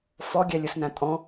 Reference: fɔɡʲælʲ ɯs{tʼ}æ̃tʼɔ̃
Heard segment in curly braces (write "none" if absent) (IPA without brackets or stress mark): n